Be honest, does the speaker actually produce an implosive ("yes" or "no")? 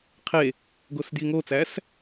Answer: no